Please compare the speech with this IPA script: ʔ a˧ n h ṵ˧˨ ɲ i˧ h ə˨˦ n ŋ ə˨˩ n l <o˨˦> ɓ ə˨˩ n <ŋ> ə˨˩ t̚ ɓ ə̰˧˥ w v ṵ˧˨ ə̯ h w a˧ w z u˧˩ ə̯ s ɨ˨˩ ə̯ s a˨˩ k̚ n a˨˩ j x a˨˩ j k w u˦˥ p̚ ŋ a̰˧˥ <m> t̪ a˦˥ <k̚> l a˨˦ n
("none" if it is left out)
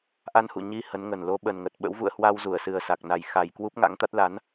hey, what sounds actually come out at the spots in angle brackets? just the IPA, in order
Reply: o˨˦, ŋ, ŋ, t̚

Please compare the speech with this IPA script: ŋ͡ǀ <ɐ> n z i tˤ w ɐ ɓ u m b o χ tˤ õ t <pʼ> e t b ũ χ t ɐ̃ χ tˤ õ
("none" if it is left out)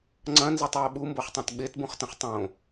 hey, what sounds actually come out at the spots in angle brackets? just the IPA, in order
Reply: ɐ̃, ɓ

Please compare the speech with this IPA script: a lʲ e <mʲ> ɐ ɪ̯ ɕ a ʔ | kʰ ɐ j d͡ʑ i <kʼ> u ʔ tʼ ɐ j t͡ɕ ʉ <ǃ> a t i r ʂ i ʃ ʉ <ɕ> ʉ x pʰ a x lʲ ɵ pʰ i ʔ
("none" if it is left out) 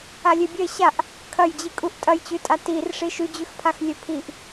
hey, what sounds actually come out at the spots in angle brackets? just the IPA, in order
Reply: bʲ, kʼ, tʼ, d͡ʑ

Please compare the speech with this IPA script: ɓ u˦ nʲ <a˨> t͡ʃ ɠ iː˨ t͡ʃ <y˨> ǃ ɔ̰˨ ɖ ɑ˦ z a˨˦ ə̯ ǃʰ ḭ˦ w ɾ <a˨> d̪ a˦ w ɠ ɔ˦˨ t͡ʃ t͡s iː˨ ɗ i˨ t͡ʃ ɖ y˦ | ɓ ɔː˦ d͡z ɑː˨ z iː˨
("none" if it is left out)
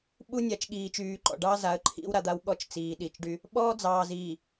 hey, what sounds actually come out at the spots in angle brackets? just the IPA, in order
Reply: a˨, yː˨, a˨

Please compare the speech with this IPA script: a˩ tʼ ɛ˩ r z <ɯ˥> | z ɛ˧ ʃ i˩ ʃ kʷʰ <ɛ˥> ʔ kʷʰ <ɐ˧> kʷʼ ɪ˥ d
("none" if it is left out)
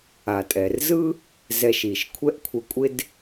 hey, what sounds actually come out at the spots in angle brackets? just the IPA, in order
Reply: ɯ˥, ɛ˥, ə˧

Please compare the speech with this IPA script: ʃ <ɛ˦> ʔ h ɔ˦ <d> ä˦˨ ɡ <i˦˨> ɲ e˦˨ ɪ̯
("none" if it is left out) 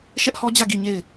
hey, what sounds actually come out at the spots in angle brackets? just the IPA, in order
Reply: ɛ˦, d͡ʑ, i˦˨

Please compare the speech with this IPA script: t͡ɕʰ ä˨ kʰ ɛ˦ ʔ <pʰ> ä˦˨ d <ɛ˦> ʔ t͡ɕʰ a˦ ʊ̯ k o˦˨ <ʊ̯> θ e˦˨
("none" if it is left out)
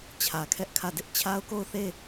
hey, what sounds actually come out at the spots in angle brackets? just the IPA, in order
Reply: kʰ, ɪ˦, ʊ̯

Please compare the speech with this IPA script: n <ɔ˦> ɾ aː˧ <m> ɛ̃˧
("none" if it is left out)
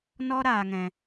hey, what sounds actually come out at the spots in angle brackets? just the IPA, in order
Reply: ɔ˦, ŋ

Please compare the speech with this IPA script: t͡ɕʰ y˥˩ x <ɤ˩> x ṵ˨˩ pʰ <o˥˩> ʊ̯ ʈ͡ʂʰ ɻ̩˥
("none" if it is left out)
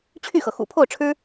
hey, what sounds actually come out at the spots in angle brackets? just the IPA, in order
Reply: ɤ˩, o˥˩

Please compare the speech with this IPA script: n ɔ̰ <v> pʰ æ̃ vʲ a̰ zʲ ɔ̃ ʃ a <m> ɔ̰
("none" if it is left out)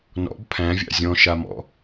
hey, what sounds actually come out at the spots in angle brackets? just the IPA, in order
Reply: b, m

